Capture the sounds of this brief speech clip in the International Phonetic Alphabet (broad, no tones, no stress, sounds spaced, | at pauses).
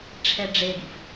ʈ͡ʂʰ ɛ ɖ͡ʐ e ɡ ḭ f